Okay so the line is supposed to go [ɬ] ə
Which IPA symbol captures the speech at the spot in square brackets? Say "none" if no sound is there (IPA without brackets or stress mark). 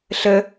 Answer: ɬ